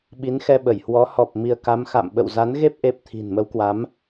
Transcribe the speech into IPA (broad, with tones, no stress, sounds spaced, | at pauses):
ɓ i˨˦ n x ɛ˧ ɓ ə˧˩ j h w ɔ˨˦ h ɔ˨˩ p̚ m i˧ ə̯ k a˨˦ m x a̰˧˨ m ɓ ə̰˧˨ w z a˨˦ n ɣ e˦˥ p̚ ʔ e˦˥ p̚ t̪ʰ i̤˨˩ n m ə˨˦ w k w a˨˦ m